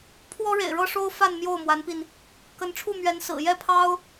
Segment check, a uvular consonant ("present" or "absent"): absent